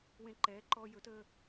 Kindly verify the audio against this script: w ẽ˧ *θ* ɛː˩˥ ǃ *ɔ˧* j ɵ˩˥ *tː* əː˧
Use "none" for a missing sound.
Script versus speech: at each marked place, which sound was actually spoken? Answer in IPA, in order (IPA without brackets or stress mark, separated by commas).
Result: ǃ, ɔ˧, t